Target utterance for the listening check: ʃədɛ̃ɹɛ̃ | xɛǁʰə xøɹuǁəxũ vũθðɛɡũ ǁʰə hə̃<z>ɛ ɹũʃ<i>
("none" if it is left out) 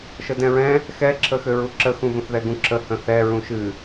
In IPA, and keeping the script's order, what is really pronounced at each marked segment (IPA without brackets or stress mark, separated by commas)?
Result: θ, ɨ